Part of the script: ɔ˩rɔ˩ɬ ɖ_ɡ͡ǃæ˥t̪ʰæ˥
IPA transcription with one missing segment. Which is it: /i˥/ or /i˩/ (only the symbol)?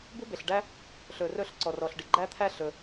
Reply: i˩